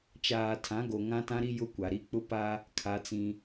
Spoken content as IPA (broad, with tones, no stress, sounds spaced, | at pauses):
t͡ʃ aː˨ tʰ ã˨˦ ɡ o˨ ŋ ã˦ t ã˦ ɾ i˦ j ʊ˦ kʷ a˨ ɾ i˦ k͡p ʊ˦ p a˦ | kʰ a˦ t͡s ĩ˦